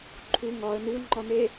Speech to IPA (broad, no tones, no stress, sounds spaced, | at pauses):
ǃʰ u ŋ ɒ ə̯ n u ŋ͡ǃ ɒ n e